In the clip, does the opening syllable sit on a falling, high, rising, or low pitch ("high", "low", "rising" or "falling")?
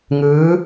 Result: rising